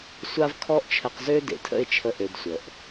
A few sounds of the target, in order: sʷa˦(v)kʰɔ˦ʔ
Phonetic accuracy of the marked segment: correct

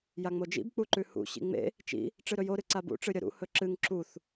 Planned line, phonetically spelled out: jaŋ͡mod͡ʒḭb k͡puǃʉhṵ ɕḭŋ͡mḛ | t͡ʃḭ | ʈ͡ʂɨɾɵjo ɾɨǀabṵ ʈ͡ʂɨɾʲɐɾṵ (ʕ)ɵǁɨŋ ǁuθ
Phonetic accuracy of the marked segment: incorrect: h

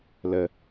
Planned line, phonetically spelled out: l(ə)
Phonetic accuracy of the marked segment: correct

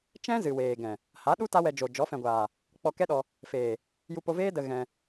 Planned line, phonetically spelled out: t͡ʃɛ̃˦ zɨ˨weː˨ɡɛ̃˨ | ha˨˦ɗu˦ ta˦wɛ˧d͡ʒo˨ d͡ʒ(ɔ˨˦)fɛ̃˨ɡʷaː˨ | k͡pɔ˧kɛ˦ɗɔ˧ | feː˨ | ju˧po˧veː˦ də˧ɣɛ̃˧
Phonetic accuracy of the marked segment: correct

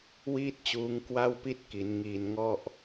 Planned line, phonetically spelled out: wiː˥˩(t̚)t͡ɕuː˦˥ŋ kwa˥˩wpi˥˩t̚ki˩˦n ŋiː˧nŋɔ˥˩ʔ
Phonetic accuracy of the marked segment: correct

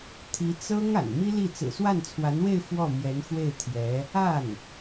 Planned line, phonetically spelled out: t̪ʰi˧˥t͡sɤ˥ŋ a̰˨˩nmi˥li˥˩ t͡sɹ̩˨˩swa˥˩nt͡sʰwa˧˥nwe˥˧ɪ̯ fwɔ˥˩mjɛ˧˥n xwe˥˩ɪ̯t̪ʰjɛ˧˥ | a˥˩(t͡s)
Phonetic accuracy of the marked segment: incorrect: n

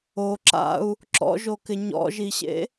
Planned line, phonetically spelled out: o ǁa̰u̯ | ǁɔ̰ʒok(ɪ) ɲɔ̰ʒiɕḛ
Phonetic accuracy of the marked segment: correct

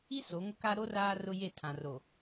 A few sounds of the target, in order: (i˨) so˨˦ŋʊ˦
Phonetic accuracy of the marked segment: incorrect: i˦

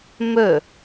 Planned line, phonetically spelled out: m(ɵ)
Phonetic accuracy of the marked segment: correct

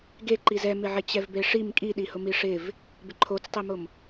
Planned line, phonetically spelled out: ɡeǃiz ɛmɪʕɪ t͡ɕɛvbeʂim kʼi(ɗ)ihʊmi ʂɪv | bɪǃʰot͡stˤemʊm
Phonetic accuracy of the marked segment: correct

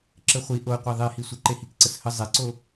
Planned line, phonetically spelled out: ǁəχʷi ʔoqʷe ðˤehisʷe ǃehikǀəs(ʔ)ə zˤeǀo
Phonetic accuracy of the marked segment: incorrect: h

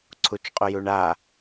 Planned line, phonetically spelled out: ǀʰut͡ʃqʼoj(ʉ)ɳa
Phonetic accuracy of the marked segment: incorrect: u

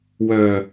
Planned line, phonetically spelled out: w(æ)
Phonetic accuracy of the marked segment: incorrect: œ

